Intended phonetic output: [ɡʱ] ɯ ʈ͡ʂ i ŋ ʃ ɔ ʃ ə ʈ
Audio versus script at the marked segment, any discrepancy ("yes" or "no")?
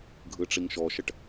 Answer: no